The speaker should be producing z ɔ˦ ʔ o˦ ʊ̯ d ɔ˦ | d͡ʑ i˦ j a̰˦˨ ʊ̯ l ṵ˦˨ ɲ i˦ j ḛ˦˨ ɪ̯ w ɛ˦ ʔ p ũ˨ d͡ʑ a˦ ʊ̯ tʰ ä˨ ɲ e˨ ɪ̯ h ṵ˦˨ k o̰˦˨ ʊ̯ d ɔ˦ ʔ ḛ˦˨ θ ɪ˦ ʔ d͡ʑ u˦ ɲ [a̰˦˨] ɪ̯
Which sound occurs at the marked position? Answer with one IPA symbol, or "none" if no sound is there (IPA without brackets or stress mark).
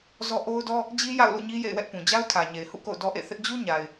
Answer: a˨